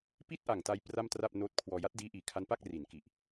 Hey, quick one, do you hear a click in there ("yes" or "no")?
no